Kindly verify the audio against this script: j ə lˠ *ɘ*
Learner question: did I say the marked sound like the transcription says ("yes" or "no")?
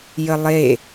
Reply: no